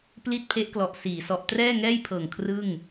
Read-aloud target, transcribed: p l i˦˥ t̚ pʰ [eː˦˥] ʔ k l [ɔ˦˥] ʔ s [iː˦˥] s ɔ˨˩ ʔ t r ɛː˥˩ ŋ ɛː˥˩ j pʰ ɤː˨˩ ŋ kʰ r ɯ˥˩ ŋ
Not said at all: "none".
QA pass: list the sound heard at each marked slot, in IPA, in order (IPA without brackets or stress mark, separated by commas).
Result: e˦˥, ɔ˨˩, iː˩˦